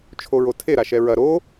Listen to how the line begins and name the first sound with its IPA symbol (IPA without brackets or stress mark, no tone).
t͡ʃʰ